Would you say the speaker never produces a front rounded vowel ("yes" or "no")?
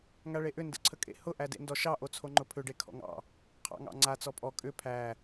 no